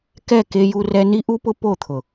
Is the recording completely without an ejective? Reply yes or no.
yes